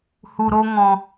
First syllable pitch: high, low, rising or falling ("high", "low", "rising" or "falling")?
low